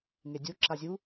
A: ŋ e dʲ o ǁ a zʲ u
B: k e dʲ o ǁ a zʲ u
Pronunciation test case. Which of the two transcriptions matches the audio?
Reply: A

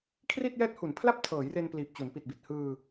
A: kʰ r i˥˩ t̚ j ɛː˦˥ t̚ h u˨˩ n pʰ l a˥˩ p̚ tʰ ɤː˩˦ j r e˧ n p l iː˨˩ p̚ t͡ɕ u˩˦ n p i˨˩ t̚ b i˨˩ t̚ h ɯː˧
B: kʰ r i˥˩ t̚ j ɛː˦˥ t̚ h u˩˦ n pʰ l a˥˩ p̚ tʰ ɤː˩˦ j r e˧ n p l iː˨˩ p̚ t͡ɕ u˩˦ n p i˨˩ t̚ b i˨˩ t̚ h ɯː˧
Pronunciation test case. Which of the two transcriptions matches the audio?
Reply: B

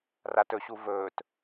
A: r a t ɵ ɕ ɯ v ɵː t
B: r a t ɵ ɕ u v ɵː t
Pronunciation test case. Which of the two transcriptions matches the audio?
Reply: B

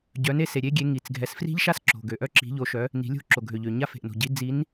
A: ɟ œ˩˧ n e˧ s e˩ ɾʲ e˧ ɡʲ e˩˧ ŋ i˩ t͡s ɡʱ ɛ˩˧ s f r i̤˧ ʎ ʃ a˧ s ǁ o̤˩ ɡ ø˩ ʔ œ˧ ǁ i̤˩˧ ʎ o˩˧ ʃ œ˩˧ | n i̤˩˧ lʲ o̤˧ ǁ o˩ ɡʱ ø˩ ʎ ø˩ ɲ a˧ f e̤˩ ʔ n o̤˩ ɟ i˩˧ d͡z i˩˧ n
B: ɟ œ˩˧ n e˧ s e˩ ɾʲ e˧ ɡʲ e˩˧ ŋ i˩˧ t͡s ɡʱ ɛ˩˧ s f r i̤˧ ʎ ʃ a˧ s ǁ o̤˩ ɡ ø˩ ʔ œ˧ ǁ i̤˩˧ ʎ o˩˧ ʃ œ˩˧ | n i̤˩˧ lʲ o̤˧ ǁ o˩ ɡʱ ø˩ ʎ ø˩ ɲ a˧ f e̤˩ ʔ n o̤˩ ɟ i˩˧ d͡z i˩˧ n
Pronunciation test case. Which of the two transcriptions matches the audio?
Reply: A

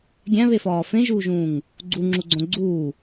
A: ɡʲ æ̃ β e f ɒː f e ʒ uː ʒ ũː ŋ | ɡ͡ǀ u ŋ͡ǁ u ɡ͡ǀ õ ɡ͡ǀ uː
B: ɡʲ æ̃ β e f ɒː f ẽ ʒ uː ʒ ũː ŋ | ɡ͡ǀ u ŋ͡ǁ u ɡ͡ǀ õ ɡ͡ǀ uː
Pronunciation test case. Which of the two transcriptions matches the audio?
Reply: B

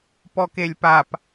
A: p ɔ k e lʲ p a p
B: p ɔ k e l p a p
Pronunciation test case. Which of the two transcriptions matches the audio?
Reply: A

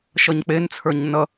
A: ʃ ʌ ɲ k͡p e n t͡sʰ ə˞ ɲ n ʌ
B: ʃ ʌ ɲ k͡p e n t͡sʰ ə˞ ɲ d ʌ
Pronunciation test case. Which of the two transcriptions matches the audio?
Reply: A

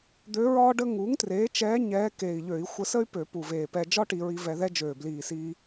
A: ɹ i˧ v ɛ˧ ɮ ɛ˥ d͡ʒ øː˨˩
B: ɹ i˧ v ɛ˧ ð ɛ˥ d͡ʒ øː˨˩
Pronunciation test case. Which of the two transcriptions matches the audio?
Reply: B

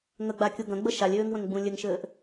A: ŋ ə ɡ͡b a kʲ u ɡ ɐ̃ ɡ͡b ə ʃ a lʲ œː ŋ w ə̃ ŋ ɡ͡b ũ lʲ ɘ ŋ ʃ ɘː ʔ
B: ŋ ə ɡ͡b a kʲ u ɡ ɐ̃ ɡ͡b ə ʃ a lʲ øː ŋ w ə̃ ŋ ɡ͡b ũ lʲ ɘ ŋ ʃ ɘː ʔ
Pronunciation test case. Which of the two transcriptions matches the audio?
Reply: B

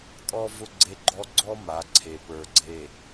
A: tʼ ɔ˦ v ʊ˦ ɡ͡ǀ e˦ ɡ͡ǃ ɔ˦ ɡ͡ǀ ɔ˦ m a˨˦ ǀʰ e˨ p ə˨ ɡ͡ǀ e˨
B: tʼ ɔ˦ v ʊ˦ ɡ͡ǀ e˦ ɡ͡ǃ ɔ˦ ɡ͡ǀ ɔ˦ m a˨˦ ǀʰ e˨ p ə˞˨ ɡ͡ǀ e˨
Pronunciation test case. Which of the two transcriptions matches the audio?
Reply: B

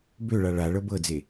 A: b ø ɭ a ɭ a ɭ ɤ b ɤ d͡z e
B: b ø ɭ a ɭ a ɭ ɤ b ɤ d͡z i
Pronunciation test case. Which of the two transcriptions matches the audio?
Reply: A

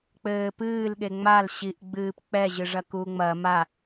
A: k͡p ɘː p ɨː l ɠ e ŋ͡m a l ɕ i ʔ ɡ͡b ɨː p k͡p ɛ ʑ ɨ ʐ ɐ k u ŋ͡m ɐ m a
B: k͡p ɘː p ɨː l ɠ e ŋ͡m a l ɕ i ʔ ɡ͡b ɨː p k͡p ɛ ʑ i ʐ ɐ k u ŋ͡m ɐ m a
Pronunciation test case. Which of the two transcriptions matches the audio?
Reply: A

